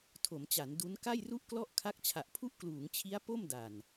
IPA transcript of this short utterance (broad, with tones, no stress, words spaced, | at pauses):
tʰo˩˦mt͡ɕa˩˦n du˦˥n ka˥˩jru˥˩ʔklɔ˥˩ʔ kʰa˦˥k̚t͡ɕʰa˨˩ʔpʰu˥˩ʔ kluː˩˦ŋt͡ɕʰi˦˥a̯ po˥˩mda˨˩n